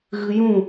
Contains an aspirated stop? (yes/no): no